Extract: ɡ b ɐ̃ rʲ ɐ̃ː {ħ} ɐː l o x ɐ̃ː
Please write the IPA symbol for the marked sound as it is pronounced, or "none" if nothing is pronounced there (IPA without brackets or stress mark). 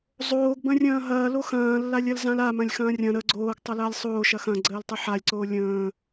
ɦ